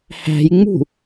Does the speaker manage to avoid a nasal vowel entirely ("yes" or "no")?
yes